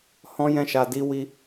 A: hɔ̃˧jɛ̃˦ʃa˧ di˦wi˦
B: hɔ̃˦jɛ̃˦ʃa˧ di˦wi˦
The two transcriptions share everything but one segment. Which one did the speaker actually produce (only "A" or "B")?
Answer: B